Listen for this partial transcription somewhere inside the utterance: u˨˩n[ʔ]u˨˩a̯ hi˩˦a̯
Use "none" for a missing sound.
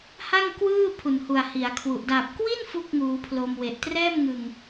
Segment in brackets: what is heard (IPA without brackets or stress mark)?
h